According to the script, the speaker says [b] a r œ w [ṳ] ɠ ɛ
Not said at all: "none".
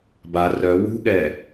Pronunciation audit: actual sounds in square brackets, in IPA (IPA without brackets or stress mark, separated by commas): b, ṳ